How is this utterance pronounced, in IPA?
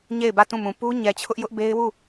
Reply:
ɲ e˦˨ ɪ̯ b ä˦˨ t ũ˦˨ m ũ˨ p u˦ ɲ ɛ˨ t͡ɕʰ ʊ˦ ʔ j ʊ˦ ʔ b e˦ ɪ̯ w u˦˨

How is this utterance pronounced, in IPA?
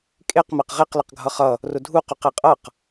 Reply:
kʼ e q m æ q ʁ e q l ə q ɡʱ ʌ χ ʌ | r ʊ dʱ u q u q e qʼ ʌ q

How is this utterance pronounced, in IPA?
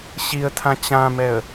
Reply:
ɕ i ə̯ tʰ ã t͡ɕ ã m ɛ ə̯

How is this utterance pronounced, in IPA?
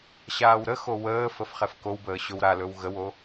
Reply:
ɕ aː w ɾ ə x o w əː f ə f χ ɛ f k o w b əː ɕ ɵ w ɾ a l ɵ w ɣ ə w o

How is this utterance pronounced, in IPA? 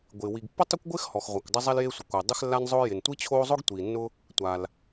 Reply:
ɡʷ ɪː˩ w i˩ ɡ pː ʊ˥ tˤ ʊ˥ kʷ ɡʷ ɪː˥ x h ɔ˩ x ʁʷ a˩ kʷ dˤ ɪ˥ zˤ ɛ˥ l j e˥ sʷ ɪ˩ kʷ ɪː˩ dˤ ɪ˥ x lː a˥ n zˤ ʊː˥ j ɪ˩ n tʷ i˥ t͡ɕʰ oː˥ zˤ ʊ˥ ɡ tʷ iː˩ nː ʊ˥ | tʷ a˩ l

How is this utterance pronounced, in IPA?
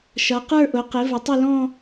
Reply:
ʃ ʌ˩˧ q ə˞˥˧ ʔ ʊ˩˧ q ɪ˩˧ v ə˩˧ tˤ ɪ˥˧ l ɔ̃˥˧

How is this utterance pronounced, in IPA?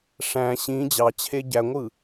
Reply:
ʂ æ̃ ɕ ĩ d͡ʑ ɑ t͡ɕʰ e ɟ æ ŋʷ ɯ

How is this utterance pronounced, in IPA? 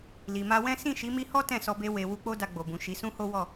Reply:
l i˨ m a˧ w ɛ̃˦ s ĩ˦˨ ʃ i˨˦ m i˧ h ɔ˦ t ɛ̃˦˨ s ɔ˧ b e˧ w e˨ w u˧ k͡p o˦ d a˧ ɡ͡b o˨ b ũ˨ ʃ i˨˦ s ũ˦ h o˦ w ɔ˦˨

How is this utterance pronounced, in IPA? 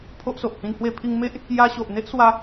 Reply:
pʰ o˦ ʔ s o˨ ʔ h ĩ˧ n h w e˧ pʰ i˧ ŋ m e˦ ʔ | j a˧ ɕ o˨ ʔ n̪ e˦ ʔ s w a˧

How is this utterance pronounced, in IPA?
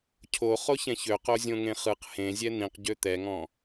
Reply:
cʰ o χ o ç ɛ̃ ç ø q o zʲ õ ŋ ẽ χ ɯ q h ẽ zʲ ɛ n̪ ĩ q ɟ ø t̪ ɛ ŋ ɔ̃

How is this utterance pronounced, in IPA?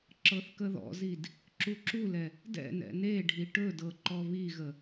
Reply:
ǁ ɤ θ k ə ð ɔ̰ z i d | ǁ u ǁ u l ɛ | d ɛ̰ n ɛ̰ n e ɖʱ i ʈ ɵ d ɤ ǃ ɔ β i ɣ ə

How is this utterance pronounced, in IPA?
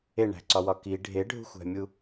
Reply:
e ɳ æ̤ ǀ ɒ w ɒ k i ɖʱ e ɖʱ ṳ xʷ æ̤ mʲ u

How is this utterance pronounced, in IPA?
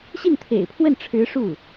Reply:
ɕ i˥˩ n t̪ʰ ḛ˨˩ ɪ̯ pʰ w ə˥˩ n ʈ͡ʂʰ ɻ̩˧˥ ʂ u˥˩

